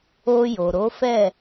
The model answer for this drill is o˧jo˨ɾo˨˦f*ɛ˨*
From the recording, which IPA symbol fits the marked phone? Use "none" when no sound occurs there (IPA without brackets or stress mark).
ɛ˦˨